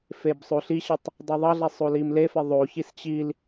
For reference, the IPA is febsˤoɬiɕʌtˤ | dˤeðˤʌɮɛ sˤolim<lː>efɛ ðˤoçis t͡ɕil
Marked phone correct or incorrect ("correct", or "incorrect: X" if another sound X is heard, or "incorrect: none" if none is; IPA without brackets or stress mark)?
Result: incorrect: l